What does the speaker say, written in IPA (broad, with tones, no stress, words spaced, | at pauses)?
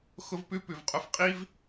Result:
xʊ˧vpʉ˧ pʉ˨vqʼʊ˧f qʼi˦v